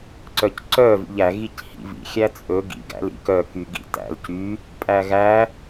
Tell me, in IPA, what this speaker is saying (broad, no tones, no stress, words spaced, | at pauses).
ǀœcǀœ vḭʎæ ɣichḭvḭ xʲæt͡sʼɵ ɡḭ ɡæ̰lḭ kœ kyɡḭtæ̰l cy | pʼæɣæ